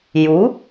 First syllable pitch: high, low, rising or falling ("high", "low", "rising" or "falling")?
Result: rising